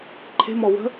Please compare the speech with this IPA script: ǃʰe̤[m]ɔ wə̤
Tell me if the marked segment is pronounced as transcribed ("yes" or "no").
yes